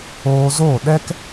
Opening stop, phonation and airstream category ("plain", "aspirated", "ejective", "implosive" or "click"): implosive